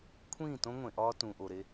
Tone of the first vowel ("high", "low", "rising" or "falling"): falling